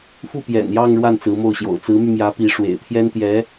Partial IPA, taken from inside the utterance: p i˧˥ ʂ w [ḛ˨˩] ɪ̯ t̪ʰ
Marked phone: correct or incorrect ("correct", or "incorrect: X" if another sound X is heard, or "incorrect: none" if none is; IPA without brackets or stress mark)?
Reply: correct